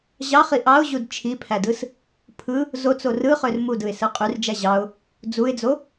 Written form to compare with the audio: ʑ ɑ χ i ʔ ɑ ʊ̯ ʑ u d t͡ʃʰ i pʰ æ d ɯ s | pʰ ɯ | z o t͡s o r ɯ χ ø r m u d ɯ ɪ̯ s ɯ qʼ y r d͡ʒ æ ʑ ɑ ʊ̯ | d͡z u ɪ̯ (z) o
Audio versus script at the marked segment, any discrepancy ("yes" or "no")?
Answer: yes